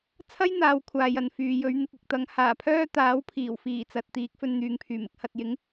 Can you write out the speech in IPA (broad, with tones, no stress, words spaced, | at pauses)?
t͡sʰɐ˥j n̪aː˨˧wkʷʰaː˨jɐ˨n fyː˨jɵ˨˧ɥ n̪ɪ˧k̚ɪ˧k̚t̪ɐ˨˥ŋ haː˨˩pʰœː˥ t̪aː˨˥wpʰiː˨˩wfiː˨˩t͡sɐ˨t̚ t̪iː˨˥k̚fɵ˧n n̪yː˨ŋpʰyː˨˩mɪ˧k̚ hɐ˨t̚ jɪ˨˥ŋ